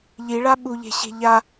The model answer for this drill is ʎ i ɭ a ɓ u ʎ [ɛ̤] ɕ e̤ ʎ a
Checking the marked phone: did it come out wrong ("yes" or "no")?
yes